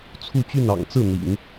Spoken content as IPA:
t͡sʰu˥˧t͡ɕy˥˩nɑ̰˨˩ŋ t͡sɹ̩˥˩n̪ḭ˨˩˦ŋ

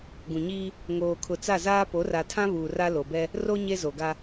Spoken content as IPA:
ɡũ˨ɲiː˦ | ŋoː˨kʰʊ˨t͡sa˦˨zaː˦ po˨˦ra˨tʰã˦ βuː˨ra˦ lo˨bɛ˦ | ro˦ ɲe˦zo˨ɡa˦

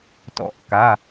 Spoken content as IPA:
tɔ̰˨˩˦ʔka˩˧˩

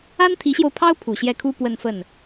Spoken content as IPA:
a˥nt̪ʰi˧˥ɕjo˧ʊ̯pʰɑ˥ʊ̯ pʰu˨˩ɕjɛ˥˩kʰu˥ pwə˥˧nfə˥˩n

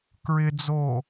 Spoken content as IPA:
kɹɪd͡zo

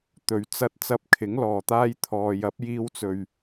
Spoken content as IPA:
t̪ɵ˨ɥ t͡sɐ˧t̚ t͡sɐ˧p̚kʰɪ˨˥ŋlɔː˨ t̪aː˧jt̪ʰɔː˨ jɐ˨˥p̚jiː˧wt͡sɵ˨ɥ

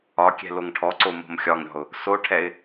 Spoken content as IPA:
ɒkʲɛ̤ loŋʈʰɔǀo mo̤mxʲɒŋɾʲɔ̤ʊ̯ | soʈʰɛɪ̯

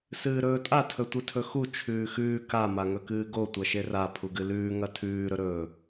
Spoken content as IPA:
sɨːɾɵːtʼa tʰɵtʷɨtʰɵxu t͡ʃʰʉːxʉː ka maŋɵkɨːɡo tʷɐʃera pʰuɡɨlʉː ŋɐtʰʉː ɾɵɾɵː

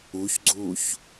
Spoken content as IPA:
uçɡ͡ǀuːç

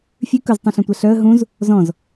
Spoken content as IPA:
fʲʉ kɵztˤũɬœ̃tʷæ ɬœə̯ ɦũz | zɔ̃z

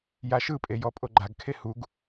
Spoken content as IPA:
jaʃɯpʼe jɔpʼoɡ͡ǃaɡkʰe huɡ

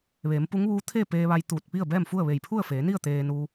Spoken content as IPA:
ʋeː˩˧mpu˧˥ŋʋuː˧˥ t̪ʰeː˥˨ peː˧ʋa˧j t̪uː˧˩t̚pi˥˨ə̯bɛː˥˨mfu˥˨ə̯ ʋe˧˩jpʰu˥˨ə̯feː˩˧ni˥˨ə̯ t̪eː˧nu˧

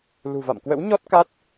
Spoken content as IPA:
lṳ˨˩va̰˧˨mkwə̰˧˥w ɲɔ˦˥t̚ka˦˥t̚

